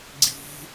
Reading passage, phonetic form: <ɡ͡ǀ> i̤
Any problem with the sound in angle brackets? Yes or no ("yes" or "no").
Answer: no